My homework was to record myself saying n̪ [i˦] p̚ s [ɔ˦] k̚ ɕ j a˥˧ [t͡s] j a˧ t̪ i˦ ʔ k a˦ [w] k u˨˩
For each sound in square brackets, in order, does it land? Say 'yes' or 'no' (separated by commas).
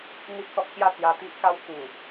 yes, yes, yes, yes